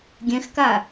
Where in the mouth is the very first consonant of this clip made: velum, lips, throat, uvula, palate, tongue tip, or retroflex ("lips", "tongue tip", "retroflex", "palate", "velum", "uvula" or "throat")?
velum